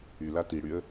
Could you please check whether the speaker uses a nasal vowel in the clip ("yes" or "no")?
no